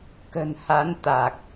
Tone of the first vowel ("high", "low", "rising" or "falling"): low